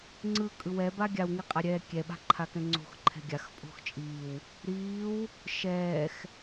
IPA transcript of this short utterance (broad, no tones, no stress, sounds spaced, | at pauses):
ŋ͡ǀ ɯ kʼ ɯ w ɛ b a ɡʲ a w ŋ i qʼ a ɾʲ ɛː kʲ ɛ ɓ a̤ ǃʰ a k ɛ̃ ŋ͡ǀ o̤ x ǃʰ ɛ̤ ɡʲ a x pʼ o̤ x t͡ʃʼ iː w | ɾ iː w | ʃ ɛː x